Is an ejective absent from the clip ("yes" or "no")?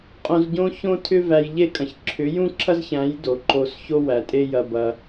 no